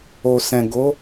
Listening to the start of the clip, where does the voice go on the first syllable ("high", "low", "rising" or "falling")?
low